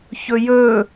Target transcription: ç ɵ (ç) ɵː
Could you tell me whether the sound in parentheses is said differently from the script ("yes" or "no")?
yes